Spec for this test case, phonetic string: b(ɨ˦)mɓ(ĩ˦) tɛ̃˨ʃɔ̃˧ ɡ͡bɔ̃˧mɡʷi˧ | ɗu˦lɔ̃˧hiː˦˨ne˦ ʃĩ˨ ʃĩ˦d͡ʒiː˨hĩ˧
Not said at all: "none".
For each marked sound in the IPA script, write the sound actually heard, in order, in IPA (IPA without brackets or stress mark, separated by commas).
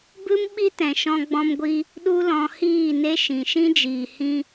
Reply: ɨ˦, i˦